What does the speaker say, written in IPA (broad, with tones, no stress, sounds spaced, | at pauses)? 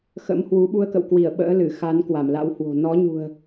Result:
x ə̰˧˥ m h w u˨˦ ɓ u˧ ə̯ k ə̰˧˨ w k w i˧˩ ə̯ ɓ ə̰ː˧˥ l ɨ˧˩ x a˨˦ n k w a˧˩ m l a̰˧˥ w h w o̤˨˩ n ɔ˨˦ ɲ ṳ˨˩ ə̯